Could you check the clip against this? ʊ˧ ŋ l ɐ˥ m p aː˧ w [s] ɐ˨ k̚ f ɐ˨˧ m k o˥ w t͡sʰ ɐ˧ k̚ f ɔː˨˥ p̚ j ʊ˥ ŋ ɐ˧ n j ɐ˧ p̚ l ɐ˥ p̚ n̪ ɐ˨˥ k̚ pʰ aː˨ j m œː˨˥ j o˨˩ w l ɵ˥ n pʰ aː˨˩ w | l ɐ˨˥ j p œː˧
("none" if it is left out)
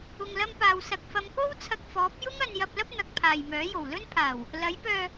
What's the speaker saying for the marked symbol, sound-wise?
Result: s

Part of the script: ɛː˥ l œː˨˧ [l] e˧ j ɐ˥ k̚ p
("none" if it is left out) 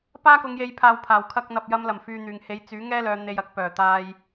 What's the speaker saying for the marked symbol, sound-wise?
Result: n̪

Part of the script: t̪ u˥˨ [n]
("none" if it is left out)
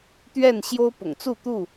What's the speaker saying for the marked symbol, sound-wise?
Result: none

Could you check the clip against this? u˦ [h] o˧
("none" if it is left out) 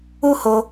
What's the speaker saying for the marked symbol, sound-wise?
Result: h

